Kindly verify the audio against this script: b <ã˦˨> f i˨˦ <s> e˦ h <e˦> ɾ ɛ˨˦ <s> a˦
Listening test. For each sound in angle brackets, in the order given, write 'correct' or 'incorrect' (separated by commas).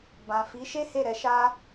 incorrect, incorrect, incorrect, incorrect